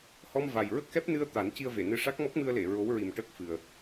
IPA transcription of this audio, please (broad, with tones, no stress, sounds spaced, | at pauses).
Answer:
h ɔ˧ m v a˨˩ j ɹ ə˦˥ k̚ x ɛ˦˥ p̚ n ɨ˧ ə̯ t̪ a˨˩˦ n c i˧ ə̯ v e˨˩˨ n ɨ˧ ʂ a˦˥ k̚ m ɔ˦˥ k̚ m ɨ˧ ə̯ l e˨˩˨ ɹ o˧˥ w ɹ i˨˩ m ʈ əː˦˥ k̚ f ɨ˨˩ ə̯